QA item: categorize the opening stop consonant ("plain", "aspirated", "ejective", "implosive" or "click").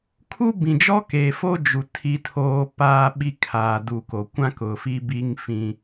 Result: aspirated